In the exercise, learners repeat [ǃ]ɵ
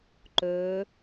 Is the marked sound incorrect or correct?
correct